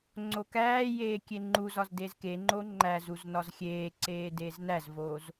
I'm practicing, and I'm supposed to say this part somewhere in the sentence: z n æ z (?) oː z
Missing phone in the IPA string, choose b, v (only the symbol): v